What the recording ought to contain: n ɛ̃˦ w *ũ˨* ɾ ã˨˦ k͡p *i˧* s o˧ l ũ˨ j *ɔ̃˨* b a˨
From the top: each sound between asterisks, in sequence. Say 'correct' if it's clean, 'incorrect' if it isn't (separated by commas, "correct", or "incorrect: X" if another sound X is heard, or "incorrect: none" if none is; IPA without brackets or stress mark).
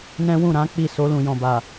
incorrect: ũ˦˨, incorrect: i˦˨, correct